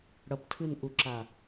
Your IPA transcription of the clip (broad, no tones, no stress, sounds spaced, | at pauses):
ɽ ʌ p tʰ ɯ n ʔ u ǁ a